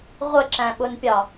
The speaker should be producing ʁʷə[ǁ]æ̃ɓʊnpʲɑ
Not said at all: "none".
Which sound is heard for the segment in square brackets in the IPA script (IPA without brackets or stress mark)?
ǁ